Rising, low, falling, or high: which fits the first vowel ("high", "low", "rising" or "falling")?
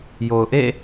low